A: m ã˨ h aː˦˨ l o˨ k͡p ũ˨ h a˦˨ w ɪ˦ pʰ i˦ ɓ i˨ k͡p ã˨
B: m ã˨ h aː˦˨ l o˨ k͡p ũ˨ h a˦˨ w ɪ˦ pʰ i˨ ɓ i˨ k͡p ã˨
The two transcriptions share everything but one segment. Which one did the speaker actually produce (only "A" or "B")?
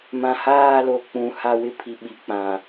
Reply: B